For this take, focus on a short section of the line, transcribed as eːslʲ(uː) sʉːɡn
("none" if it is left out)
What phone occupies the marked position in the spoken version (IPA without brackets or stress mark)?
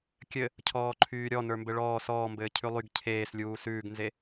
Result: uː